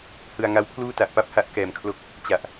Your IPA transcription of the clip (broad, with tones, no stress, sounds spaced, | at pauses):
h ɯ˧ a̯ ŋ a˦˥ w pʰ l uː˥˩ t a˨˩ ʔ p a˥˩ p̚ h a˥˩ ʔ k ɛː˨˩ m kʰ l o˦˥ k̚ | t͡ɕ a˨˩ ʔ